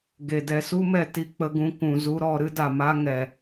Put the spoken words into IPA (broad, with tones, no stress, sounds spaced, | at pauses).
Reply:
ɡ e˨ d ɛ˧ s u˦ m ɛ˧ t i˨ k͡p ə˧ ɡ ũ˧ k ũ˨ z u˧ ɾ ɔ˨ ɾ ɨ˦ d a˨ m a˦ ŋ ɛ˨